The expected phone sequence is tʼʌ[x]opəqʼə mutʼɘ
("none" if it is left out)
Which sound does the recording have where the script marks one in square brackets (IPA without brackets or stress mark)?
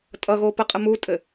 ɣ